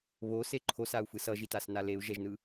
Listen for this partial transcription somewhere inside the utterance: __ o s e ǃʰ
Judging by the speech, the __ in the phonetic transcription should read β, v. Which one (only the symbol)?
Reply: β